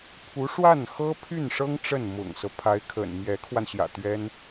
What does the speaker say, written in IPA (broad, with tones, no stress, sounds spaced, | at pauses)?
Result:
pʰ u˧˥ ʂ w a˥˩ n x ɤ˥ pʰ y˥˩ n ʂ ɤ˥ ŋ ʈ͡ʂ ə˥˩ n m ʊ̰˨˩ ŋ s ɤ˦ pʰ a˧˥ ɪ̯ kʰ ə̰˨˩ n m j ɛ˧˥ kʰ w a˧ n ɕ j ä̰˨˩ t̪ ɥ ɛ˥ n